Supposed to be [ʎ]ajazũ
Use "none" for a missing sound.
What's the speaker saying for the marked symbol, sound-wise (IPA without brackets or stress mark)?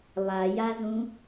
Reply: lˠ